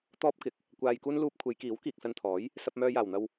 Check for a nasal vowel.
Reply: absent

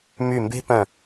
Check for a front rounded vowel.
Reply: present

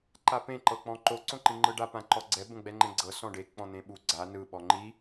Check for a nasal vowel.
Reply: present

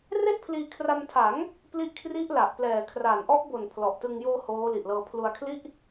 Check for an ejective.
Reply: absent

